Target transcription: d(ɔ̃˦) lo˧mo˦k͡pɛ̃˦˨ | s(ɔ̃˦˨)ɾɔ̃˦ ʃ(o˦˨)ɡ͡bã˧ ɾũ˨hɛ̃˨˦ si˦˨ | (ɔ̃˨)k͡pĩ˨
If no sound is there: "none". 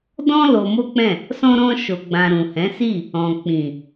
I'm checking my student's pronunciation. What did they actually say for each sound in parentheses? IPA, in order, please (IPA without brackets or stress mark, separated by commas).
ɔ̃˦, ɔ̃˦, o˧, ɔ̃˨